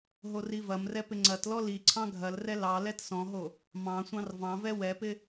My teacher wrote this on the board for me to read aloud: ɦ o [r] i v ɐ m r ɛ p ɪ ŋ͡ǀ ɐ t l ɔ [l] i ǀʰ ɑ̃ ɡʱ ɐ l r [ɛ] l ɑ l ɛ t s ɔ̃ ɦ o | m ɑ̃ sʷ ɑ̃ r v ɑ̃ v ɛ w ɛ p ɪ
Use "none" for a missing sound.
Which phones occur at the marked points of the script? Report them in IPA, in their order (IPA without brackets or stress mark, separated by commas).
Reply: r, l, ɛ